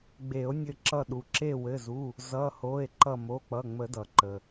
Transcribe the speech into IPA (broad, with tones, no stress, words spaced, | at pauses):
ɡ͡be˨˩˦o̯nʲɘ˧˩ǁʌ˧˩ ɗu˩ǁe˧˩wɘ˩˧˩zu˩˧˩ | zʌ˩˧˩ho˩˧˩e̯ ǃʌ˧˩mo˩˧˩k͡pʌ˩˧˩ ŋ͡mə˨˩˦dʌ˩ ǃə˩